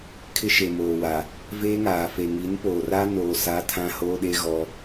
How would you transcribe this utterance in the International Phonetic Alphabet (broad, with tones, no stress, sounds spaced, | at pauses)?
kʰ ɪ˦ ʃ e˨ m oː˨ w a˨ | v eː˦ ŋ aː˨ f e˨ ŋ i˨˦ n p oː˨ r a˦ n oː˨ s a˨˦ tʰ ã˦ h oː˦ ɗ e˦ ɣ ɔ˦